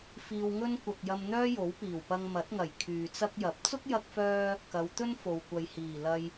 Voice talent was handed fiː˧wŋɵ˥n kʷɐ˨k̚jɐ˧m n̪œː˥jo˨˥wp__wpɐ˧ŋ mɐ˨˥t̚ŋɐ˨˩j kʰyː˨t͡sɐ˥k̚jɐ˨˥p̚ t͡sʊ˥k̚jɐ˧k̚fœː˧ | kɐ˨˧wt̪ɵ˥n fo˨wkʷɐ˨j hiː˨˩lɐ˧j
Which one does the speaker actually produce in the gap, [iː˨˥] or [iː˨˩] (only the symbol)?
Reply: iː˨˩